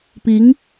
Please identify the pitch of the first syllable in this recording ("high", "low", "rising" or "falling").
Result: rising